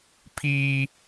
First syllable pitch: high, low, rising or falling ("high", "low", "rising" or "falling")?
high